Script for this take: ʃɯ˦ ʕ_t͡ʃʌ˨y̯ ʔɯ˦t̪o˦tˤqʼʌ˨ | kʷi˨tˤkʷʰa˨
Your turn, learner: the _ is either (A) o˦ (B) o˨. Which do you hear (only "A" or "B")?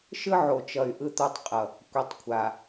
B